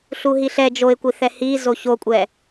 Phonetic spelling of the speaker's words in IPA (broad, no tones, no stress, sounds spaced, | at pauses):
ɬ u ɦ i ɬ ɛ d͡ʒ o ɪ̯ kʷ i θ ɛ h i z o ç o kʷʼ ɛ